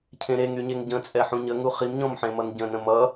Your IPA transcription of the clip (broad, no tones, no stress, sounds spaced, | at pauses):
cʰ ẽ ɾ e ŋ y ɲ e ŋ ɟ ə̃ t͡sʼ ɛ ħ ũ ɲ ə ŋ u χ i m ɲ ɔ̃ m ħ ẽ m ʌ n ɟ ə̃ n ə̃ m ʌ